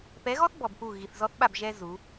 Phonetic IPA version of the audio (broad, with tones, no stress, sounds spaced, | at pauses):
p ɛ˨˦ ɣ ɔ˦ θ b ɔ˨ b p u˦˨ ɣ i˨ θ z ɔ˦ θ ɓ a˦˨ b ʒ ɛ˦ z u˨˦